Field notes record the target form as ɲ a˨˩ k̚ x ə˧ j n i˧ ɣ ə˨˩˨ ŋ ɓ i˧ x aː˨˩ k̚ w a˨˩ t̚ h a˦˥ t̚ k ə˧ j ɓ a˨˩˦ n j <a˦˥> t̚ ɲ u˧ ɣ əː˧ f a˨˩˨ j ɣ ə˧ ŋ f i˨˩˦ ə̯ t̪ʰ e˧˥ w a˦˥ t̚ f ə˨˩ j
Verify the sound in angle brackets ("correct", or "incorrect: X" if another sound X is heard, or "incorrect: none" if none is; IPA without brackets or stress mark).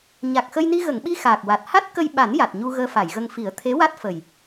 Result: incorrect: a˨˩